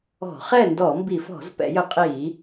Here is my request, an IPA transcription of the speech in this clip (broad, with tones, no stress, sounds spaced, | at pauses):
ɔ̤˧˩˧ χ ɛ˥˨ n d ɔ˧˩˧ m b i˧˩˧ f ɔ̤˧˩˧ z p ɛ̰˧˩˧ j ə˧˩˧ qʼ iː˧˩˧